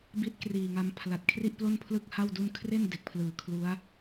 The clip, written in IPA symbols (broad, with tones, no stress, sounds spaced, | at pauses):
b i˦˥ t̚ k r iː˨˩ ŋ a˧ m pʰ l a˨˩ t̚ kʰ r i˥˩ ʔ p l o˥˩ n pʰ l ɯ˥˩ k̚ h a˥˩ w d u˥˩ n kʰ r e˥˩ n d e˨˩ k̚ pʰ l ɯː˨˩ kʰ l u˦˥ a̯